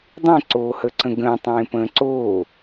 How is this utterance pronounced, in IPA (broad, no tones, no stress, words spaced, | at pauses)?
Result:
dˤẽǀoːhəǀə̃ ɡə̃ːtˤẽːpə̃ː ǀoː